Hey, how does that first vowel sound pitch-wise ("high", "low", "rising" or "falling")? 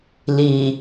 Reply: low